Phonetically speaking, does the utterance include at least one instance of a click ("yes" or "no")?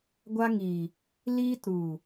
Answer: no